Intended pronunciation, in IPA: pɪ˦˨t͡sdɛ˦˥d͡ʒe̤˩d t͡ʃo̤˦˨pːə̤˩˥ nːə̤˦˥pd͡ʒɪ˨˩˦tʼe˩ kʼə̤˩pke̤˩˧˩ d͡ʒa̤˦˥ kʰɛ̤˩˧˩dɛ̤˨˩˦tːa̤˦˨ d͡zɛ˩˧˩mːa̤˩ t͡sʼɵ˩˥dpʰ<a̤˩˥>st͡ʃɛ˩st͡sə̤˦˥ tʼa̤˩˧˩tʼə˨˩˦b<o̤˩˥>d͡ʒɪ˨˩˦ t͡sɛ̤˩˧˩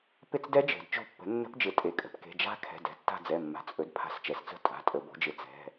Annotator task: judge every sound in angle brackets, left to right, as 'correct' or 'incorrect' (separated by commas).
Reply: incorrect, correct